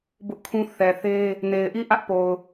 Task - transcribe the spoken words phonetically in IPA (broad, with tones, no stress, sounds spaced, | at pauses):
b ʊ˦ ʔ kʰ ũ˦ θ ɛ˨ θ e˦ | n e˨ ɪ̯ ʔ i˦˨ ʔ ä˦ ʔ p o˨ ʊ̯